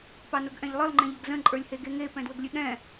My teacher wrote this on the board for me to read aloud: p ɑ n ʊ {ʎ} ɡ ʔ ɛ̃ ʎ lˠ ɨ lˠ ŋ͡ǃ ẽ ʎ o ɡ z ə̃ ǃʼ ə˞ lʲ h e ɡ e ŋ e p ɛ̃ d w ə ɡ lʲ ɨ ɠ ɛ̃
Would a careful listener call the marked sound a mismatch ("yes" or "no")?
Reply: yes